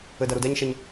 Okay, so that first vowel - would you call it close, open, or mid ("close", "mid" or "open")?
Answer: mid